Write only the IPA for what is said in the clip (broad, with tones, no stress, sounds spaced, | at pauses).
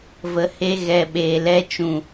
v ə˨˦ h e˧ ɣ ɛ˨ ɓ eː˨ l ɛ˧ t͡ʃ ũ˨